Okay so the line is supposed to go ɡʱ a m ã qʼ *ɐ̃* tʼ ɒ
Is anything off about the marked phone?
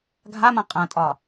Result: no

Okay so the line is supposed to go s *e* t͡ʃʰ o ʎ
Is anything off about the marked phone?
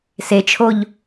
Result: no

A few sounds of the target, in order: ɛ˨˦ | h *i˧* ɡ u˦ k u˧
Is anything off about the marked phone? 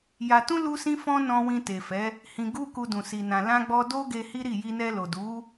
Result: yes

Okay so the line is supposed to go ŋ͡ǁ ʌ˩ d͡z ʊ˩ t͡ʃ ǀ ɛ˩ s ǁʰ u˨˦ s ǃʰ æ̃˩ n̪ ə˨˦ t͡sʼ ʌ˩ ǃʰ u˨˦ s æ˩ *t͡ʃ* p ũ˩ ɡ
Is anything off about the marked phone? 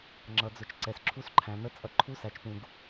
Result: no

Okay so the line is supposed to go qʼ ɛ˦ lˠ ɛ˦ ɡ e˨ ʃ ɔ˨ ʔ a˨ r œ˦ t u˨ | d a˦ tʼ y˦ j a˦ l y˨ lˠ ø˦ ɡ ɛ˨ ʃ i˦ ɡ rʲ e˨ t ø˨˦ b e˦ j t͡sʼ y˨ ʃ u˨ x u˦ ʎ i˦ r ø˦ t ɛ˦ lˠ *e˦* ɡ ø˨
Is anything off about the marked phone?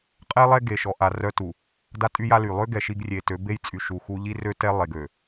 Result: yes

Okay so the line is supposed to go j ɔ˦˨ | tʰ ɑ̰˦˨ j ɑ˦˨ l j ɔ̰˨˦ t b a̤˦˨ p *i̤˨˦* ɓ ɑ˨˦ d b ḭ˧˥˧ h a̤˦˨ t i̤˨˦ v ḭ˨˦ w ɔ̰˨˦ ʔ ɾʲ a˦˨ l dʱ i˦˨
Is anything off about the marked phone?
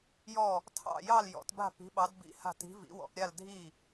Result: no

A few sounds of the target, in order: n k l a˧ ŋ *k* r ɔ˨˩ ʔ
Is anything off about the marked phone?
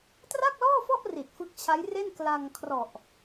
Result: yes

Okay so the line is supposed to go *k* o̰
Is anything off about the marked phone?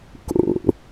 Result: no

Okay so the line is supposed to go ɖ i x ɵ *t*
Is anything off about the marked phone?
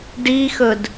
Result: yes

